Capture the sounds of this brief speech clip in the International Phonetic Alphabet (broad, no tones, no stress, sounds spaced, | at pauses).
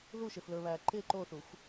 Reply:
ð u ʃ ɪ f l ɵ β æ ǃ ɪ ǃ o θ u xʷ